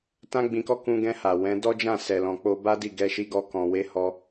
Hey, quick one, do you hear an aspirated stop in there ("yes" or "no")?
no